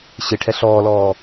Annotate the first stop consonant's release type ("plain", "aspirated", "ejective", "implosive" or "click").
aspirated